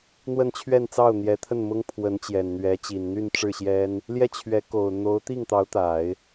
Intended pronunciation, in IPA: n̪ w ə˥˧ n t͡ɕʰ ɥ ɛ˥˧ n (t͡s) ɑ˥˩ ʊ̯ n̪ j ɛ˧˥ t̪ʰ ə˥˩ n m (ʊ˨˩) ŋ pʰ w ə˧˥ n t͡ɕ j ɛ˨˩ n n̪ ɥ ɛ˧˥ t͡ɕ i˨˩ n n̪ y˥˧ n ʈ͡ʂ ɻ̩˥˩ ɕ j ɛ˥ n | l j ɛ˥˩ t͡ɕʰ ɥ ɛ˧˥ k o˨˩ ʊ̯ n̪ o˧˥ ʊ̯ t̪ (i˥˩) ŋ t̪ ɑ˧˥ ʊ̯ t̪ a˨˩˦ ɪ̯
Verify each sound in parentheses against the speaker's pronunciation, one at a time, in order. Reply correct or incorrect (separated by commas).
correct, incorrect, correct